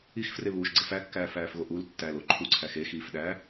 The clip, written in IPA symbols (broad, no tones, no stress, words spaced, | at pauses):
ixfreβuːʃɡ͡ǀe fækːæːfæːfɣo ʔul tːælo ǃʰuǀʰæx exiːfɗæː